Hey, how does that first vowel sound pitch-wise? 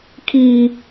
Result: high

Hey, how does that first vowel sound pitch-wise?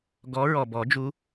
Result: rising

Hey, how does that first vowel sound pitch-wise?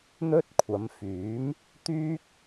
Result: high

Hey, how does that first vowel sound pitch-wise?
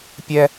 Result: high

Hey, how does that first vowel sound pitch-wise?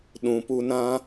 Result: low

